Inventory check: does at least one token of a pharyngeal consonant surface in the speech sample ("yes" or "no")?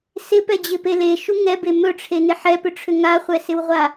yes